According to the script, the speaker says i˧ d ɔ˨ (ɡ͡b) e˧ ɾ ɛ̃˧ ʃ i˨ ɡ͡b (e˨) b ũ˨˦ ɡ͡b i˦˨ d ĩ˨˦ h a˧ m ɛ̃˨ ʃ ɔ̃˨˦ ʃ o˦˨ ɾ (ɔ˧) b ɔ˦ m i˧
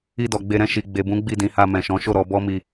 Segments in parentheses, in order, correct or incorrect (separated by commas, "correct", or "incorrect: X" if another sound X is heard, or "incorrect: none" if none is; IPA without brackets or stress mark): correct, correct, correct